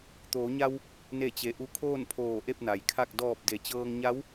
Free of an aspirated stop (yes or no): no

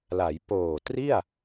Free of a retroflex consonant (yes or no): yes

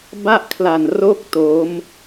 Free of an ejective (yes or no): yes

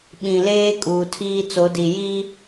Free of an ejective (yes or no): no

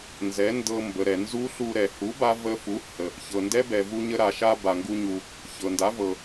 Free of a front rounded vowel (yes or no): yes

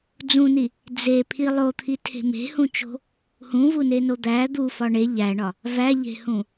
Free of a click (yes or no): yes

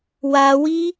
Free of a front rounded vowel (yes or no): yes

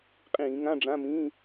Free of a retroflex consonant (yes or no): no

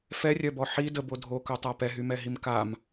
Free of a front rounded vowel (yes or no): no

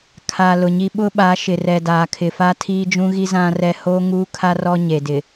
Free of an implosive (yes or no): no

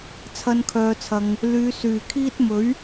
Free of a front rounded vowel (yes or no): no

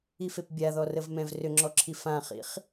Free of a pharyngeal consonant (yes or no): yes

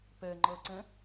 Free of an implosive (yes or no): yes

